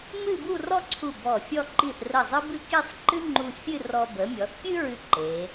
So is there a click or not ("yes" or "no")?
yes